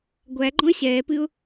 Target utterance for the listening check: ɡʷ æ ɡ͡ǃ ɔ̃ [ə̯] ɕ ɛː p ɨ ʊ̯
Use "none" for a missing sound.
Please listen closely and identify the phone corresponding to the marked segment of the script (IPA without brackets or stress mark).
ə̯